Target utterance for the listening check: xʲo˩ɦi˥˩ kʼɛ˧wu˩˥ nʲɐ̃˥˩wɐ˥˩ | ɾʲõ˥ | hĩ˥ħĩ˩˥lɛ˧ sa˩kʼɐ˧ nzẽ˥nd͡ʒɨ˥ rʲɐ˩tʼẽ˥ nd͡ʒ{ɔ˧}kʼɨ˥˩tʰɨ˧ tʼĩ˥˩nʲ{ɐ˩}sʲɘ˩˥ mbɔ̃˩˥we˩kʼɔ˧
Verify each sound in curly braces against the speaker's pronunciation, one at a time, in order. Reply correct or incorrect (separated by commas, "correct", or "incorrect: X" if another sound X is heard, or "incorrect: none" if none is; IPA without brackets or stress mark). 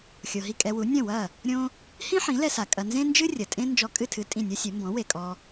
correct, incorrect: ɐ˥